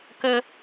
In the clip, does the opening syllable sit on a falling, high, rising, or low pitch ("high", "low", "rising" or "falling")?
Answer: high